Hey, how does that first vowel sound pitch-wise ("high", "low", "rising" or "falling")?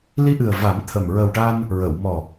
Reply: rising